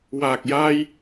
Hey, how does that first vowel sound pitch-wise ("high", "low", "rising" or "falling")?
low